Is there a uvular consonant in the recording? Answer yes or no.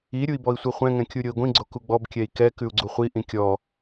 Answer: yes